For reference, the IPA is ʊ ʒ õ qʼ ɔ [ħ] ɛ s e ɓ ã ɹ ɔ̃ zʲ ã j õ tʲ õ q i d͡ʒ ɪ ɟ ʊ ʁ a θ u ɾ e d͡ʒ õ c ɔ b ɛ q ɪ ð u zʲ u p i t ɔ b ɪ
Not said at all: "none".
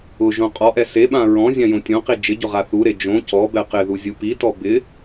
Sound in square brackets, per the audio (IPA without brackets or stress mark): ʔ